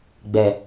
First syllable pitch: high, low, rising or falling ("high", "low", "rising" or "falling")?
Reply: low